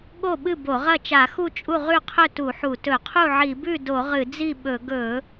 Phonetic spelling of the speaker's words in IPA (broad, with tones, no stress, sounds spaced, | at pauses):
ɠ o˥˩ ɓ ɨ˥˩ b o˧˩˧ ʁ ɐ˥˩ t͡ʃ a˧˩˧ x u˥˩ t͡ʃʼ u˥˩ ʁ ʉ˥˩ qʰ ɵ˥˩ t u˧˩˧ ħ u˧˩˧ t ɵ˧˩˧ qʰ u˥˩ ʕ i˧˩˧ b ʉ˥˩ d o˧˩˧ ʁ ɨ˧˩˧ d͡z i˥˩ ɓ ɵ˧˩˧ ɡ ɵ˧˩˧